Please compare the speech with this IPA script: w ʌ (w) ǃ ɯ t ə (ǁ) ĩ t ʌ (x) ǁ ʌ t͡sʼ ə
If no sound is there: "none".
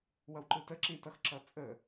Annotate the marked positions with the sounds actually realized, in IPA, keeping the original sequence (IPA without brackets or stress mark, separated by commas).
w, ǁ, x